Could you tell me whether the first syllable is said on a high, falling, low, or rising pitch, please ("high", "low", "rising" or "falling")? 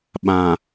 low